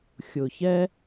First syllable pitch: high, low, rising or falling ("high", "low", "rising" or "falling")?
low